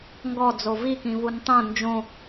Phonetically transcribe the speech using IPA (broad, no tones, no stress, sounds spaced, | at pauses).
ŋ ɡ ɔ d͡z o v i k ĩ v u n tˤ õ n d͡ʒ õ